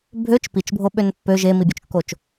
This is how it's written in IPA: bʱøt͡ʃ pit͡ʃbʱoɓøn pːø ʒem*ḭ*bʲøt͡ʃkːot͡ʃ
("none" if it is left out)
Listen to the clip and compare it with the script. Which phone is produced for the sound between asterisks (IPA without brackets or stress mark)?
i